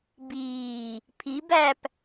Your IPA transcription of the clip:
b iː | pʰ i b æ p

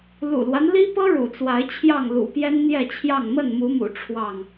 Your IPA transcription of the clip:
l ṵ˨˩ l w a˦ n l i˦ p ɤ˦ ɻ ṵ˨˩ t͡s w a˨˦ ɪ̯ t͡ɕʰ j ɑ˥˨ ŋ l ṵ˨˩ p j ɛ˦ n n̪ j ɛ˥˨ t͡ɕʰ j ɑ˥˨ ŋ m ə˥˨ n m u˨˦ m ṵ˨˩ ʈ͡ʂʰ w ɑ˥˨ ŋ

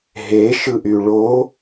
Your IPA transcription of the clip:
ɦ e ʃ ɯ ʔ y ɭ o

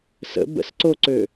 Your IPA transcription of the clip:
s ə̰ b ə̰ s ǀ o ǀ ø

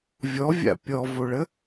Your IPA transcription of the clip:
vʲ ɔ vʲ a̰ pʲ ɔ v o ɭ ə

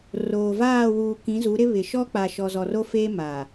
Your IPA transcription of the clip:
r oː˨ v aː˦˨ w uː˨ k ĩ˨˦ z u˨˦ ɾ ɪ˦ β ɪ˨ ʃ ɔ˦ k͡p a˨ ʃ ɔ˨ z ɔ˨ r o˦ f eː˦ m a˨

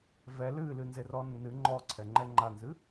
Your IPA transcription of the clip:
v ɛ l ɨ l ɨ n z e r ɔ nː ɨ ŋ͡ǃ ɔ ǀʰ ɛ ŋ͡ǃ ɛ ŋ͡ǃ a n z ɨ

